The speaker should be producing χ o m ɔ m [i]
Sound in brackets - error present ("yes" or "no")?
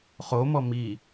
no